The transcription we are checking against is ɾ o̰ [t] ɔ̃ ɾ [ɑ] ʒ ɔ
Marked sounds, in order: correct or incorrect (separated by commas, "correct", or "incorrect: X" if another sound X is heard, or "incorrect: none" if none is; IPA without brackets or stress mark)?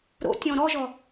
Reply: incorrect: tʲ, incorrect: ɔ